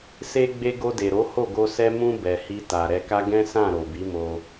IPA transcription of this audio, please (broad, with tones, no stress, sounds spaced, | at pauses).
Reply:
s e˧ ɡ͡b e˧ ɡ o˧ d e˨ ɾ o˨˦ h o˦˨ ɡ o˧ s ɛ˧ m ũ˧ b ɛ˨ h i˧ t a˨ ɾ ɛ˧ k a˦ ɡ ɛ̃˦ s ã˦˨ ɾ o˨ b i˨˦ m o˧